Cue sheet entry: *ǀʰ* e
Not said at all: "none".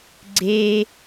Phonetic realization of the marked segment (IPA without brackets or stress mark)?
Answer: ɡ͡ǀ